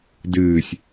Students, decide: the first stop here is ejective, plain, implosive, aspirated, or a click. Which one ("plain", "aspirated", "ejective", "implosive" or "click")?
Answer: plain